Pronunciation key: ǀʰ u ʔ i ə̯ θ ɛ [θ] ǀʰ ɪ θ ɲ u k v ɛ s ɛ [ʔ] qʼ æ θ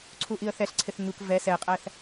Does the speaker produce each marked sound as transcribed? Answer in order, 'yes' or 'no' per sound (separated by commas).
no, no